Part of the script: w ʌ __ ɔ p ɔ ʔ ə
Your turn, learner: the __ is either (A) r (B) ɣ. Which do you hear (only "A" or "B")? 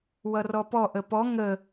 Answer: A